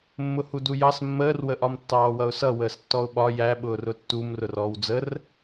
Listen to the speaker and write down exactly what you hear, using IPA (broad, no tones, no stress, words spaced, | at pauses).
mːʊhudujɑs mːəːrwəʔɒm tːɑːwʌʊ̯sʌ wəːstːɔʊ̯ɓɒ jæɓʊːr ʊtːum rʊrɔːwd͡zər